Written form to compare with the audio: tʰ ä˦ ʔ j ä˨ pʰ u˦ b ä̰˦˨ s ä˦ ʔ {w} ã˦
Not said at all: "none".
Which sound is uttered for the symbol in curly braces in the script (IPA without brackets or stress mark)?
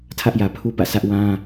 w